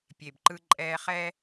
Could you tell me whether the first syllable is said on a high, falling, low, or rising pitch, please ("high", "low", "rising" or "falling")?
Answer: low